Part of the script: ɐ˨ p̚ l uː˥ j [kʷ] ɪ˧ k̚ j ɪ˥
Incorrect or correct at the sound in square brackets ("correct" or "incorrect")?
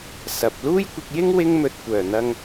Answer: correct